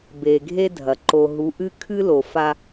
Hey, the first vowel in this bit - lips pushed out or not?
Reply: no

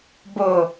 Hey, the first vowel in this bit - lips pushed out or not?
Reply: yes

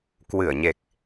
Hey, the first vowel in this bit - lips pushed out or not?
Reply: no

